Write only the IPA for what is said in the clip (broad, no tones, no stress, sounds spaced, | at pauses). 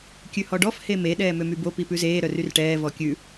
kʲ ʉ h ɔ ɖ ɔ f h e m e ɗ ɛː m ø m y b o p i p ʉ z eː ɾ œ r y r ʈ ɛː v ɔ kʲ ʉ